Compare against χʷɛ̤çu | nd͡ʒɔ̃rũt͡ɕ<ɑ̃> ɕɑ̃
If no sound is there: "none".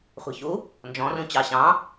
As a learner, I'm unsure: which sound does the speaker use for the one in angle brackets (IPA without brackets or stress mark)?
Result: ɑ